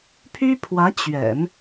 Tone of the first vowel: high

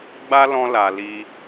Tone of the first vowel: high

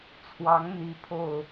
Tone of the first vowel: rising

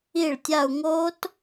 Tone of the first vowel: falling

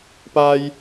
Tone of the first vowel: high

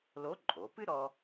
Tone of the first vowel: rising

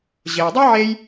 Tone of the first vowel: low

